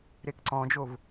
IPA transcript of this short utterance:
ɾekǀɔ̃d͡ʒov

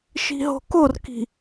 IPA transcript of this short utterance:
ʃi̤ɦo̤korki̤

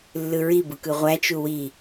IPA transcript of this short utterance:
lːɯɹibɯ kɯʁʷæt͡ʃu wi

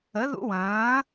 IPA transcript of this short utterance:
ə˨˥ðṵ˦˥wɐ̃ː˨˥

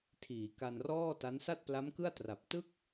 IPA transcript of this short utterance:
tʰiː˩˦ka˧nrɔː˥˩ta˦˥n sa˥˩t̚pla˦˥mkɯ˥˩a̯tra˨˩p̚ tɯ˥˩k̚

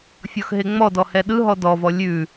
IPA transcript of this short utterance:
fʲɔxɦeŋ͡mɔdɔ hɛɗɯɦɔ dɔvɔ lʲʉ

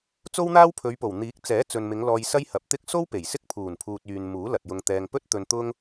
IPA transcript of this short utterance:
t͡so˥wn̪aː˥wpʰɵ˨˧ɥpo˨˩w n̪iː˨˥k̚ t͡sɛː˨˥t͡sɵ˨nmɪ˨˧ŋ lɔː˧jsɐ˥j hɐ˨˥p̚t̪ɪ˥k̚ so˥wpe˨˩j sɪ˥k̚pʰuː˨˩npʰuː˨t̚ yː˨n muː˨˥lɐ˨t̚jʊ˧ŋt̪ɛː˧ŋ pɵ˥t̚t̪ɵ˧n t̪ʊ˥ŋ

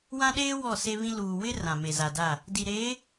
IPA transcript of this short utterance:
wã˦ɗeː˦ wɔ˦˨se˦βĩ˦ luː˨ wɪ˦ rã˨me˨za˨da˦˨ | di˨ɾeː˨˦

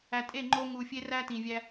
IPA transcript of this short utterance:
æ˨tʼe˦˨ŋ͡ǃo˧ ŋu˨fʲe˧ræ˧ tĩ˨vʲæ˧

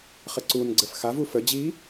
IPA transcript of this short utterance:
χəǀun ɡ͡ǀəfxavu fə d͡ʑi

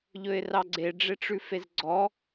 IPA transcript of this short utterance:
ʎɵɪ̯rɑɡ͡ǀe ɖ͡ʐeʈ͡ʂʉfezɡ͡ǀɔ

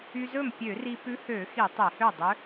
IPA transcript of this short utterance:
y˧zɵ˥˩m pʲø˧˩˧ri˧ pʉ˧˥hø˧˩˧xi˧˩˧ tˤe˧˩˧hø˥˩dˤø˧˥

